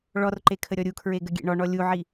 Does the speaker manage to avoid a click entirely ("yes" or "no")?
no